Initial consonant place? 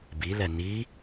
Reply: labial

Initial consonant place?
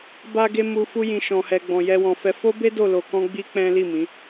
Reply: labial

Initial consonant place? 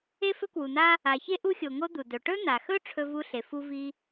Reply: labial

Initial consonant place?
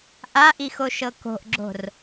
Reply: glottal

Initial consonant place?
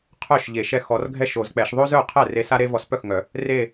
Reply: uvular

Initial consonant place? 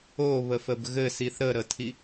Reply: labial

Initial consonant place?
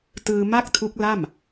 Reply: alveolar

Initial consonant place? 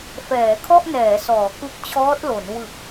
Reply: labial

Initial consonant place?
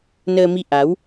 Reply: alveolar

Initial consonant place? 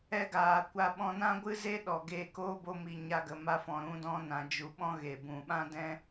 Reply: velar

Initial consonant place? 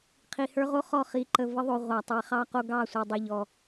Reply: uvular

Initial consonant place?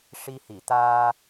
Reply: retroflex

